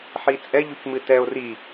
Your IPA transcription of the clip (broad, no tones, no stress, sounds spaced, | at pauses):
ħ i t͡sʼ ɛ ʎ u c m ɨ t ɛ o̯ r i